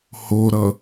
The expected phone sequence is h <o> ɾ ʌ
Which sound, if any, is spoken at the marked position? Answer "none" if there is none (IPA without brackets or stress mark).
o